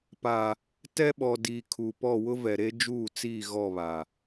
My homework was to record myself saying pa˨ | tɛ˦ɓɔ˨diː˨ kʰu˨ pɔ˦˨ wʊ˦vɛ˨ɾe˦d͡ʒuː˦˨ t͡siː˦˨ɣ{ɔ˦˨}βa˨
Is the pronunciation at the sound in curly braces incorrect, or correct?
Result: correct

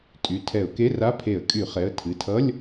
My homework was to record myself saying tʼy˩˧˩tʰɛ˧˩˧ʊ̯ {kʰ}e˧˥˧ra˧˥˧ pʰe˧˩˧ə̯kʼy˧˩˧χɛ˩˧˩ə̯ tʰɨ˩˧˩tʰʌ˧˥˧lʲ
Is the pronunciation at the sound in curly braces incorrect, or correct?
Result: incorrect: k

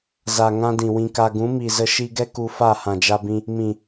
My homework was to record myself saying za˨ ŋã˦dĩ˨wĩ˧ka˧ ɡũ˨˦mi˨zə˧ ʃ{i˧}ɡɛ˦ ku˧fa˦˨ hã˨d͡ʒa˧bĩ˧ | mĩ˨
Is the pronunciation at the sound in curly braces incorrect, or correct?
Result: correct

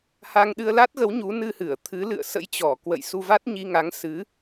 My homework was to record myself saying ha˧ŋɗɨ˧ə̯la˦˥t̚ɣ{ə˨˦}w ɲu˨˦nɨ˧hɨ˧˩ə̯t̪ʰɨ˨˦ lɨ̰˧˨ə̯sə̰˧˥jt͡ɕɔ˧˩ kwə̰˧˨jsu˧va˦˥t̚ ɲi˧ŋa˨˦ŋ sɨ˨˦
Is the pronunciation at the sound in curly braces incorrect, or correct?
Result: correct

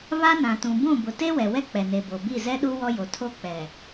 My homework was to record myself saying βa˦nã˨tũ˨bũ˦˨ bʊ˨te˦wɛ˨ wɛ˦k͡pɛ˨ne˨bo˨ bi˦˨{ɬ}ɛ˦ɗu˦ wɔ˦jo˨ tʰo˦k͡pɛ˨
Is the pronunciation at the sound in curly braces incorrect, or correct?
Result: incorrect: z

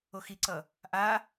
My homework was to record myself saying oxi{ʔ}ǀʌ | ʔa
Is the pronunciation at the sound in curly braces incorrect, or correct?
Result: incorrect: none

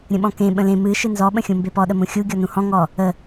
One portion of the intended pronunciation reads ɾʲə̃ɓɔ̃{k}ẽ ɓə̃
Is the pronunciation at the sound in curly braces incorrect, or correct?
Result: correct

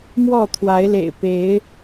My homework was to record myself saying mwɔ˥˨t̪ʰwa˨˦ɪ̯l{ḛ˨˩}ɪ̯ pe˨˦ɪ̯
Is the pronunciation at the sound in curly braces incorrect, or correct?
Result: correct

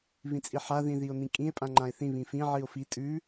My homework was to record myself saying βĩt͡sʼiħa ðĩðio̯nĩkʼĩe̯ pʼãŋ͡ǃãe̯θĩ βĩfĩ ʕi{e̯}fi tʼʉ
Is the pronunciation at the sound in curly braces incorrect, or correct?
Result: incorrect: o̯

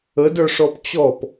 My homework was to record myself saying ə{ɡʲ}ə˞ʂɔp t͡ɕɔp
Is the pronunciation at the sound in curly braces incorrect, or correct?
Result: incorrect: d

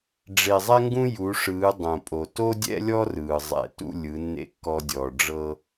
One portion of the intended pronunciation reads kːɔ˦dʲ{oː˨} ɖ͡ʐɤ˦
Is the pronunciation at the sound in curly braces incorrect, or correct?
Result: incorrect: ɔː˨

